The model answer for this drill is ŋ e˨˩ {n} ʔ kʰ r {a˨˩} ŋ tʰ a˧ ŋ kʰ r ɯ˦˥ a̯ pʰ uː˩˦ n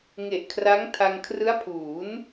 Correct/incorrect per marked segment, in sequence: incorrect: none, incorrect: a˦˥

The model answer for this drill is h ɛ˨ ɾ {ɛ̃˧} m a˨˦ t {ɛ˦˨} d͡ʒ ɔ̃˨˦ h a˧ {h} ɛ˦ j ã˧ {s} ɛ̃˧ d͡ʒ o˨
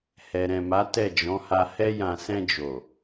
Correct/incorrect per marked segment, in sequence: incorrect: ɛ̃˨, correct, correct, correct

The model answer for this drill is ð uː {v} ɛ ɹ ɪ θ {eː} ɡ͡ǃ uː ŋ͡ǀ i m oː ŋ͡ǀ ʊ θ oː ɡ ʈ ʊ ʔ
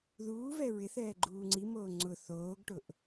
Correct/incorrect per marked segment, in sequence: correct, incorrect: ɛː

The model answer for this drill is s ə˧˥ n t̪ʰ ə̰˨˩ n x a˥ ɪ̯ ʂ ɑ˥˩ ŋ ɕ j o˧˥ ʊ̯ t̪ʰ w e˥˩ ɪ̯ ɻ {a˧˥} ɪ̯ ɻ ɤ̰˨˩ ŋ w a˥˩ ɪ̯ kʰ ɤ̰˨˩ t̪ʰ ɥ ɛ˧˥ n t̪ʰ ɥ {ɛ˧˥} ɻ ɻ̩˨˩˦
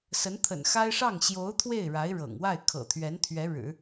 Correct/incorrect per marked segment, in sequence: correct, correct

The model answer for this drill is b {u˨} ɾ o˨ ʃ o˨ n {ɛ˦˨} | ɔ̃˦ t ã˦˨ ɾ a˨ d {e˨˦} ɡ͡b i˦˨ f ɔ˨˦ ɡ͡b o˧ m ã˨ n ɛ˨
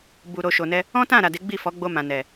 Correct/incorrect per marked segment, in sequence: correct, incorrect: ɛ˧, correct

